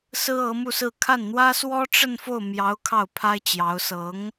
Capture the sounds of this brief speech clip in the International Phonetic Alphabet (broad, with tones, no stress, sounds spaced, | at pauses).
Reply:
s ɹ̩˥ ɤ˧˥ m u˥˧ s ɹ̩˥˧ kʰ a˥˩ n n̪ w ä˥ s w ɔ˥ ʈ͡ʂ ə˥˧ n f o˥˩ ʊ̯ m j ɑ˧˥ ʊ̯ kʰ ɑ˥˩ ʊ̯ pʰ a˥ ɪ̯ t͡ɕ j ɑ˧˥ ʊ̯ s ɤ˧˥ ŋ